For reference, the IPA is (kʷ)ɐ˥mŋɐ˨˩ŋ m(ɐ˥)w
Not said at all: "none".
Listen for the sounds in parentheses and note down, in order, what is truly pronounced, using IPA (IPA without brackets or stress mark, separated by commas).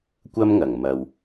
kʷ, ɐ˨